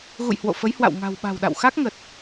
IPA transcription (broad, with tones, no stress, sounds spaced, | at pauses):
ɣ ṵ˧˨ j h w o̰˧˨ f ə˨˦ j h w a̰˧˨ w ŋ a̤˨˩ w ɓ a̤˨˩ w ɗ a̰˧˨ w x a˦˥ k̚ ŋ ə˨˩ t̚